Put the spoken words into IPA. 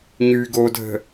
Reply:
ɲ y ɡ o dʱ ə̤

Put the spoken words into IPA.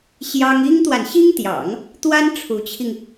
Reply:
ɕ j ɑ˥ ŋ i˥ ŋ t̪ w a˨ n ɕ i˥ ŋ t̪ j ɑ̰˨˩˦ ŋ | t̪ w a˥ n ʈ͡ʂʰ u˧˥ t͡ɕʰ i˧ ŋ

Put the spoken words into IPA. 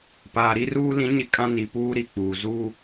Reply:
p aː˨ ɾ i˦ r uː˦ l ĩ˨˦ ɲ ɪ˨ kʼ ã˦ n i˨ p uː˦ ɾ i˨ k͡p uː˨ z uː˦

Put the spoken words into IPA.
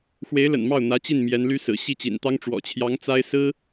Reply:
x w e˧˥ ɪ̯ l ə̰˨˩ n m ɑ˥˩ ʊ̯ n̪ ä˧˥ t͡ɕ i˥˩ n m j ɛ˧˥ n l y˥ s ɹ̩˨˩ ɕ i˥˩ t͡ɕ ḭ˨˩ n t̪ ɑ˥ ŋ ʈ͡ʂ w ɔ̰˨˩ t͡ɕʰ j ɑ˧˥ ŋ t͡s a˥ ɪ̯ s ɹ̩˥

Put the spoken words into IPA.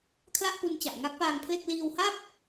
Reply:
kʰ l a˥˩ ʔ p u˧ n t͡ɕ a˨˩ ʔ ŋ a˦˥ k̚ p aː˧ ŋ pʰ l e˥˩ k̚ l iː˧ w h a˥˩ p̚

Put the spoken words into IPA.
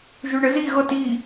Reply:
ʒ ʉ ɳ ə z i ɣ ɤ t i

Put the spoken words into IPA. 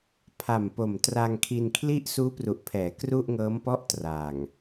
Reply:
pʰ a˨˩ m p o˨˩ m t r a˧ ŋ kʰ i˧ n kʰ l i˥˩ ʔ s uː˦˥ p r u˨˩ ʔ pʰ ɛː˩˦ k r u˥˩ ʔ ŋ ɤː˦˥ m p ɔ˥˩ ʔ t r a˨˩ ŋ

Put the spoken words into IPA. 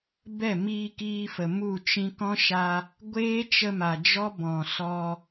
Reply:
b ɛ˦˨ m iː˧ k iː˧ f ə˨ m u˦˨ t͡ʃ ĩ˦ k ɔ̃˦ ʃ a˧ | ɡʷ eː˦ t͡ʃ ə˧ m a˨ d͡ʒ ɔ˦ b ɔ̃˨ s ɔ˧

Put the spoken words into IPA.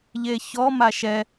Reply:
ʎ e ç ɔ m a ʃ ɛ

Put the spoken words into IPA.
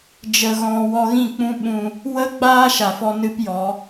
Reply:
d͡ʒ ə˧ ɣ ɔ̃˧ w ɔ˧ ɣ ĩ˦˨ k͡p ũ˦ ɓ ũ˧ | w ə˦ ɡ͡b aː˦ ʃ a˨ f ɔ˦ n ɨ˦ p j ɔ˨˦

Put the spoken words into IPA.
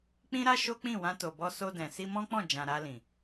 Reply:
k͡p ĩ˦ ɾ a˦ ʃ o˦ k͡p ĩ˦˨ w ã˧ t o˨ b ɔ˧ s o˧ d ɛ̃˨ s i˧ m ɔ̃˦ k͡p ɔ̃˦˨ d͡ʒ ã˨ ɾ a˧ l ĩ˨

